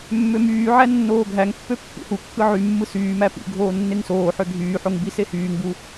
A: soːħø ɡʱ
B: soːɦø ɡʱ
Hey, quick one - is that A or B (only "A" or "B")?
A